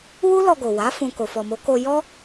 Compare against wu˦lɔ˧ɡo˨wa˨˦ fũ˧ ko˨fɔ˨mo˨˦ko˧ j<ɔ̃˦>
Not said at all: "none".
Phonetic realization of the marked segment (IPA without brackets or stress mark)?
ɔ˦